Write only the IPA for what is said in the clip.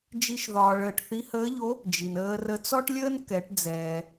d͡ʒ i˥ ʃ ð ɒː˧ ɭ əː˧ ʈ θ i˧˥ h əː˧˥ ʎ o˧˥ | d͡ʒ i˩ n əː˧ r ə˧ t͡s ɔ˥ ʈ lʲ əː˥ n k ɛ˩˧ ʈ d͡z ɛː˩

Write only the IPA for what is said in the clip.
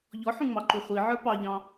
ʎ ɔ ħ ũ ŋ͡m ɑ ǃ u χʷ i ʕ ə˞ p ɑ ʎ ɑ̃

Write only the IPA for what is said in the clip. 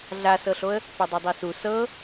ɮ a s ɤ ɬ o ə̯ | p ɐ dˤ ɐ dˤ i s u s ɤ

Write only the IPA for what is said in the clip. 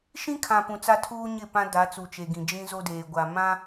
ʃ ĩ˦ kʰ ã˨ p ũ˨ t͡s a˦ tʰ uː˦ ɲ ɪ˦˨ p ã˦ d a˨˦ t͡s u˨ t͡ʃ e˨ ɡ ĩ˨ d͡ʒ ĩ˦ z o˦ d eː˨ ɡʷ a˨ m ã˦

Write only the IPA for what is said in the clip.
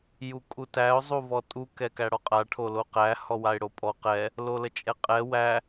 j u kʼ u t æ ʊ̯ zˤ u v ɔ tʼ u k ɛ k æ ɽ ɔ qʼ a ʈʰ o l o q æ h ɔ w a ɪ̯ ɽ o pʼ ɔ q ɛ | l o l ə t͡ʃʼ ɛ qʼ ɛ w æ

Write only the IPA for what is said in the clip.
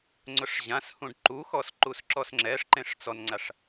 ŋ͡ǀ ʊ ʂ ʑ ã s h ũ ɖ ǃ u x ɔ s ǃ u s ǁ ɔ s ŋ͡ǁ ɛ ʂ ǃ ẽ ʂ t͡s ɔ n ŋ͡ǀ a ʂ

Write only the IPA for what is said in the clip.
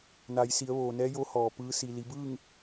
n a˩˧ j s i˩˧ ə̯ ʋ oː˩ n ɛː˧˥ j o˧˥ h ɔː˩ p ɯː˧˥ s i˩ l i˩˧ b ɯː˥˨ ŋ

